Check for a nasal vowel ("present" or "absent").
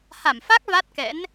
absent